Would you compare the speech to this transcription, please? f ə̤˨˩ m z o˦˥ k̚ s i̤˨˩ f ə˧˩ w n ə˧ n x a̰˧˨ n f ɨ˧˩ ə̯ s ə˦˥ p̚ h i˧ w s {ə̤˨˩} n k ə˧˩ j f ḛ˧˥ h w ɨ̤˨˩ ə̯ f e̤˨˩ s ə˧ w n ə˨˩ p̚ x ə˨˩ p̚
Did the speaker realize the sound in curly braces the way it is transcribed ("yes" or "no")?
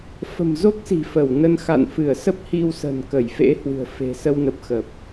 yes